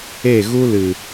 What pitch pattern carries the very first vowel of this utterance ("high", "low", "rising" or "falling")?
falling